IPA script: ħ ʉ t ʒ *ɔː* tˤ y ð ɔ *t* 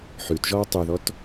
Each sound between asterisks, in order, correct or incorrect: correct, correct

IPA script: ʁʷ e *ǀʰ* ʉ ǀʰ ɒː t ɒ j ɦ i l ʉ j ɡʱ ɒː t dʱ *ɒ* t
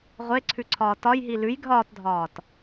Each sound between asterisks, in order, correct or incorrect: correct, incorrect

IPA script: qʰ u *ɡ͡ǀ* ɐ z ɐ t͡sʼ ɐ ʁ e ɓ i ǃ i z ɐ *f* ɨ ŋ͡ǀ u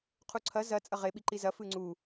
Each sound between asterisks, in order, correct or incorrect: incorrect, correct

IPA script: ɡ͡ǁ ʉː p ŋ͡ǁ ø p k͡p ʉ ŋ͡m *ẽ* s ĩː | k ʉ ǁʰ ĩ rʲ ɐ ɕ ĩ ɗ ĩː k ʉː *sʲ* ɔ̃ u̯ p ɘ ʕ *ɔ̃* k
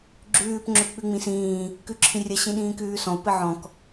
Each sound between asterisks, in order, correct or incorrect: incorrect, incorrect, correct

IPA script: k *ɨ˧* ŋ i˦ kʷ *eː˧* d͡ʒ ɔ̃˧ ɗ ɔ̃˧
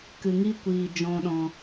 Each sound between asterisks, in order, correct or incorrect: correct, incorrect

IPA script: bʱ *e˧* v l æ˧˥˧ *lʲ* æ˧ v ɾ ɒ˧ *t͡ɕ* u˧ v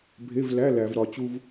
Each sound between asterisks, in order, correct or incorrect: incorrect, incorrect, correct

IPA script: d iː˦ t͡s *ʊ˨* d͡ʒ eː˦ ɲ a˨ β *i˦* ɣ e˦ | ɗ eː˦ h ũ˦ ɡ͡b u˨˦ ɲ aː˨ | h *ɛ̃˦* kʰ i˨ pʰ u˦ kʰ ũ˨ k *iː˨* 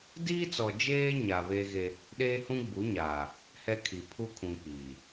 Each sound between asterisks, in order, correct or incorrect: incorrect, incorrect, incorrect, correct

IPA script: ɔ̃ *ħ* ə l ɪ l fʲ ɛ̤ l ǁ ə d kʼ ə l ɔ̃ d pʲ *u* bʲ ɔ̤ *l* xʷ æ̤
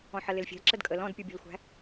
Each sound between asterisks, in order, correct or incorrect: correct, correct, correct

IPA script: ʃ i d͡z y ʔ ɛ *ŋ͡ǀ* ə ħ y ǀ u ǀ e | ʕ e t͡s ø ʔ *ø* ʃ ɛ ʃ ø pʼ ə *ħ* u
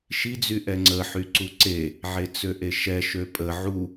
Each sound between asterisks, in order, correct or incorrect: correct, incorrect, incorrect

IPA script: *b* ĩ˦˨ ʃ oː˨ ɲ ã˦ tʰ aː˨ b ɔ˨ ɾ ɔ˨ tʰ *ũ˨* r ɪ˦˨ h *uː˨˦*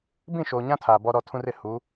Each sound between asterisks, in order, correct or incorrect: correct, correct, correct

